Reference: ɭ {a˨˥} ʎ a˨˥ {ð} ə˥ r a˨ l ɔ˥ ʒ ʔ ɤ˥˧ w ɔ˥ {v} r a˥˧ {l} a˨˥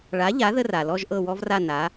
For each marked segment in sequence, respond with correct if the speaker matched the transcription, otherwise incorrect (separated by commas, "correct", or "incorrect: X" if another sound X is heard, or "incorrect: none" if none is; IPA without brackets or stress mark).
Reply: correct, correct, correct, incorrect: n